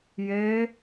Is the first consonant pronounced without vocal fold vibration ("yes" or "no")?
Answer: no